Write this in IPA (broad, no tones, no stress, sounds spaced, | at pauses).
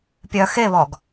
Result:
pʲ œ x e β ɔ ɡ